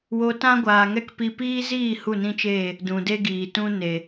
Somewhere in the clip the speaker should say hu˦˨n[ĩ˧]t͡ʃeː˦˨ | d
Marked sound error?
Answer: yes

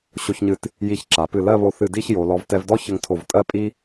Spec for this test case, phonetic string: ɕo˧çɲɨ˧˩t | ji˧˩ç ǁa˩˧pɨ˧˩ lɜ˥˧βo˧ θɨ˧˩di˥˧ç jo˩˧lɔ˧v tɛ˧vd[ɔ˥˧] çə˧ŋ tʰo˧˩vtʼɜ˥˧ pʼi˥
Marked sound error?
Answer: yes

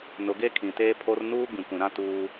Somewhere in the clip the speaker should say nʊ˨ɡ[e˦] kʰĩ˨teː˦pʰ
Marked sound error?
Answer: no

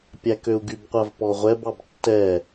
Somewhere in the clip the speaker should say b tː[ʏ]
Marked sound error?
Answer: yes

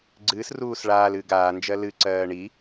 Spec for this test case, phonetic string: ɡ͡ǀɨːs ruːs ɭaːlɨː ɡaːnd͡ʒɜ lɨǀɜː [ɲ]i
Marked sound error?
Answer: yes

